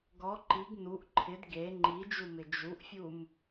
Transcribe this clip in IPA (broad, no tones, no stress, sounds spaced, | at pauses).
ɡ ɔ ǃ i ɡ n u ʔ ǃʰ ɪ d ɡ e ŋ͡ǃ i d͡ʒ u m ɪ d͡ʒ u ʔ fʲ u m